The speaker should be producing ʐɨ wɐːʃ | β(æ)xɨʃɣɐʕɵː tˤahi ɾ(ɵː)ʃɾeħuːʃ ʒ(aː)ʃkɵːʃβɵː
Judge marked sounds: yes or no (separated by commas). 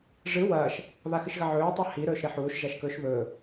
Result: no, yes, no